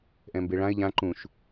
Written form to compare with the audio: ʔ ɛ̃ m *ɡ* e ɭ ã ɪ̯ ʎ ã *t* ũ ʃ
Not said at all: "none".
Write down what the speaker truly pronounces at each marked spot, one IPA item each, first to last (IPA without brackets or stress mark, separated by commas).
b, ǃ